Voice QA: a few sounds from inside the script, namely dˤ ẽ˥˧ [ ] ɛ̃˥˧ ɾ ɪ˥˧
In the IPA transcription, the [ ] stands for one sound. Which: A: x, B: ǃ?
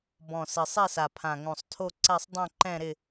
B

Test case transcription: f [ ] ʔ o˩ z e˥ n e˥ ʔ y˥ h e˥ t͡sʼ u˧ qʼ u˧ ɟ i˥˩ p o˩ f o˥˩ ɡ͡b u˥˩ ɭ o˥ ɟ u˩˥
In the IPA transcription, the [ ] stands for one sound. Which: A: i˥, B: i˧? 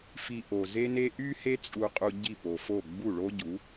B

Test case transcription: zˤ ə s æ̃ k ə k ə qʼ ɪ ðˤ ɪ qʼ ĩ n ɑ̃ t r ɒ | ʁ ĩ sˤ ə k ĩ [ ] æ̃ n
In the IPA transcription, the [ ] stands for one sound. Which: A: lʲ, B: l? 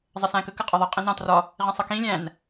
A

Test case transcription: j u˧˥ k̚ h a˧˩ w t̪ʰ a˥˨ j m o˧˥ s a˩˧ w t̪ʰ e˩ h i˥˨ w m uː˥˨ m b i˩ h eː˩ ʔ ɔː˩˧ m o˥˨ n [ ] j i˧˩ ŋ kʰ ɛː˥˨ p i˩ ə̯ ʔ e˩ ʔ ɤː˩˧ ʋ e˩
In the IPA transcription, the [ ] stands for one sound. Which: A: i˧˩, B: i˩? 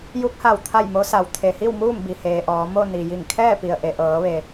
B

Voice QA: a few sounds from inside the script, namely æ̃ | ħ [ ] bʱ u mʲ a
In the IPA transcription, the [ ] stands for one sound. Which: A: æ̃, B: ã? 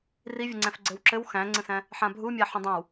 B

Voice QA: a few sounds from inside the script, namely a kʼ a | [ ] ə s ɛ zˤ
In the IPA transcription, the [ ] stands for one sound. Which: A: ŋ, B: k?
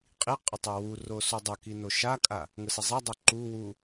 A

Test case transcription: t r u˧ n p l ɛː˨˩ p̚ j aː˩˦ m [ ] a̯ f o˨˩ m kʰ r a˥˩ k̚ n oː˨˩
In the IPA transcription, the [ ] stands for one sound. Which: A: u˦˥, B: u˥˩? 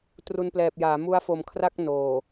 A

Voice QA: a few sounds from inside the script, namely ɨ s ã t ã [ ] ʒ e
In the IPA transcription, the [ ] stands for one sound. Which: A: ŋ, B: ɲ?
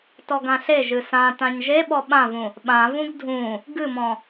B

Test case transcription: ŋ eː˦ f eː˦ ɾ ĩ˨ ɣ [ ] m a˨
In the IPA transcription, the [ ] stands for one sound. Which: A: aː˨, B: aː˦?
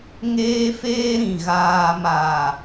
A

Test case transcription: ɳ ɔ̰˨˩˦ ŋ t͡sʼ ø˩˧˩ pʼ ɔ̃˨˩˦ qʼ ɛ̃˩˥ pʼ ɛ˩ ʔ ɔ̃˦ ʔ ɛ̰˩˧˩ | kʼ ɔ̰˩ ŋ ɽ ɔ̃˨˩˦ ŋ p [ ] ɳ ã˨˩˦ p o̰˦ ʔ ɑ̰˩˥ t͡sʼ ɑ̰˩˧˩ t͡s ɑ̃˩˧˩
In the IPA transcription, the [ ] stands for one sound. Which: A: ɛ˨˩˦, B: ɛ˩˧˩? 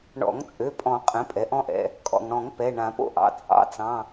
B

